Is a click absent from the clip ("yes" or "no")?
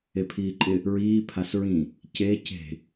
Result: no